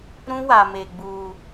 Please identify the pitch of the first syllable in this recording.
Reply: high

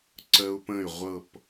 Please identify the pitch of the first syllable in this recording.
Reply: high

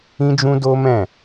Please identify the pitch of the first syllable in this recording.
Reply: high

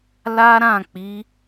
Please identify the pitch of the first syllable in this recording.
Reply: high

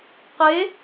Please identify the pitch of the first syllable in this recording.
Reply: rising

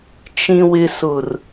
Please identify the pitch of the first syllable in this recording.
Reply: low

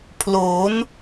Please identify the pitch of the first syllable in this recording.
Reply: rising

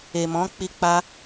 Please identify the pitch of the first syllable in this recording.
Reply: low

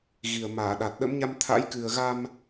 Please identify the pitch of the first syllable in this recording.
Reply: low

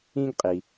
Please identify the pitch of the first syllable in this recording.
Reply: high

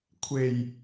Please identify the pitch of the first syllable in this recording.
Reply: low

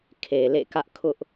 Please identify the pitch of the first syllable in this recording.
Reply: low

